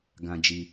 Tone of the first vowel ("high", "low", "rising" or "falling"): high